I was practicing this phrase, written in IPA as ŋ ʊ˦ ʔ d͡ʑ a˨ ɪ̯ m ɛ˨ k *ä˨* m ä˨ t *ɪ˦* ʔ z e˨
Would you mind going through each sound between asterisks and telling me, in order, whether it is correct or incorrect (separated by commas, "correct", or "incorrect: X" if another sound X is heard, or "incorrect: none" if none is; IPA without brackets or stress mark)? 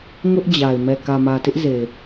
correct, correct